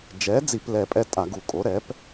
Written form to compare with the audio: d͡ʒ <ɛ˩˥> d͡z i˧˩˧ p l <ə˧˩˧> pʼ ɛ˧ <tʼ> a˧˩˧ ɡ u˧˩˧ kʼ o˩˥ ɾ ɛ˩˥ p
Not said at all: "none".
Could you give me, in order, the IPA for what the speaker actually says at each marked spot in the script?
ɛ˩˥, ɛ˧˩˧, tʼ

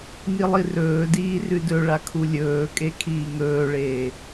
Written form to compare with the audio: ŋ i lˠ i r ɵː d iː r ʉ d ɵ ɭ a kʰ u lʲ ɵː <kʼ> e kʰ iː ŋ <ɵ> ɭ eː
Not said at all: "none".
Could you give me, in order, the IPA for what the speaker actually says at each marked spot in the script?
kʼ, ɵː

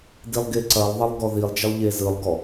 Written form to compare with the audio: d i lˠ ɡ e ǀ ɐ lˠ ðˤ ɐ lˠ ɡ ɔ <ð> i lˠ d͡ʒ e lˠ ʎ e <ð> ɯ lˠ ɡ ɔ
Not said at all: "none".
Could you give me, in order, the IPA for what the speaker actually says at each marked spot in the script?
ð, z

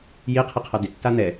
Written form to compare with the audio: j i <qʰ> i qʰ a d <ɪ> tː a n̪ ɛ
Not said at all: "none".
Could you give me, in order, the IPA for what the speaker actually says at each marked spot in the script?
qʰ, ɪ

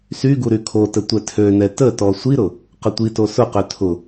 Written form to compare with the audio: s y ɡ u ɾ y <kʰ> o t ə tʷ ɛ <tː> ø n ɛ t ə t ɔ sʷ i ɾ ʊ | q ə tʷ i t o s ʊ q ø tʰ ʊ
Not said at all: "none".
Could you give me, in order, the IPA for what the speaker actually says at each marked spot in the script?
kʰ, tʰ

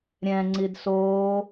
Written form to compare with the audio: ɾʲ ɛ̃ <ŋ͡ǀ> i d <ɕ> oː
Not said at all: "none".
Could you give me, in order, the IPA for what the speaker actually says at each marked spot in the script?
ŋ͡ǀ, s

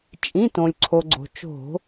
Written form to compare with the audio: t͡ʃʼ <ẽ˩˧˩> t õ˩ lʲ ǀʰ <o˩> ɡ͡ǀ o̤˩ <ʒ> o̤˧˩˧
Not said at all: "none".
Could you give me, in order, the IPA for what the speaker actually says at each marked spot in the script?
ĩ˩˧˩, o˩, t͡ʃ

